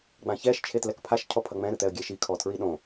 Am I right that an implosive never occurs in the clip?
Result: no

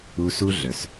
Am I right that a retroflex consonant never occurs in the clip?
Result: yes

